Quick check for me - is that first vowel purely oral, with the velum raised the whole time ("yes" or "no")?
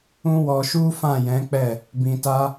no